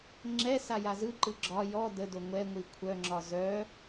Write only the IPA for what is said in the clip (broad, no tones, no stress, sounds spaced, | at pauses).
ŋ͡ǁ ɛ s a j a z ɯ ǃ ɯ ɡ͡ǁ ɒ j ɔ d ə d o ŋʷ ɛ ŋʷ i kʷʰ œ ŋ͡ǁ ɒ z œ